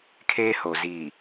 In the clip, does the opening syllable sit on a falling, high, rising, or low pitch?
high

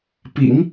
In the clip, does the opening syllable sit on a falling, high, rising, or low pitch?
low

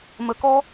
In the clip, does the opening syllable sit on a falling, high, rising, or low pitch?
low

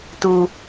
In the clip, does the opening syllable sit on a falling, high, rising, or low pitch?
low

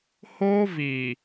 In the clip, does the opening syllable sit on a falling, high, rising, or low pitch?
high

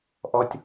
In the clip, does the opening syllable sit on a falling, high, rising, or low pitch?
high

